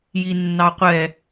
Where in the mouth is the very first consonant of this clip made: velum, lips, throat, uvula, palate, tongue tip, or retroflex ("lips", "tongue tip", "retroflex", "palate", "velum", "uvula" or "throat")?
palate